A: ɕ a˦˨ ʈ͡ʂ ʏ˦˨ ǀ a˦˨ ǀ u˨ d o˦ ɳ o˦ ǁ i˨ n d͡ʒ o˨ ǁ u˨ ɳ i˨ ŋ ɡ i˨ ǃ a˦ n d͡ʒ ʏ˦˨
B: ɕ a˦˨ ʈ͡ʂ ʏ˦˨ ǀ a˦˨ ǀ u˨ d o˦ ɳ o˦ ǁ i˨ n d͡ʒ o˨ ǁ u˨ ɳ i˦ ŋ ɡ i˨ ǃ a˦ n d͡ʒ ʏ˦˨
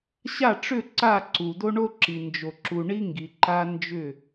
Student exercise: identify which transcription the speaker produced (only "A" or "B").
B